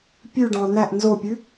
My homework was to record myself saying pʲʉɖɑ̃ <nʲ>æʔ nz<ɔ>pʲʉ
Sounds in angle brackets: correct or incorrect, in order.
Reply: incorrect: n̪, incorrect: o

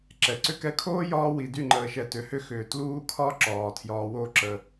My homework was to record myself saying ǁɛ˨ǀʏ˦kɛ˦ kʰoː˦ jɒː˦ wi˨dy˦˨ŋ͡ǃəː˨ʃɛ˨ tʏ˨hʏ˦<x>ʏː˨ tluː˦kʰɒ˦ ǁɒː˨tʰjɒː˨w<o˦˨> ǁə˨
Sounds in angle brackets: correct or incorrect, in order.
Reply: correct, correct

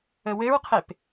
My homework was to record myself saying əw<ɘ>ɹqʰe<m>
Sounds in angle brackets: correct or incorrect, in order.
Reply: correct, incorrect: p

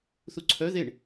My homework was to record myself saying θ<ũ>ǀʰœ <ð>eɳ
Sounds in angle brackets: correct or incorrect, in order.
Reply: incorrect: u, correct

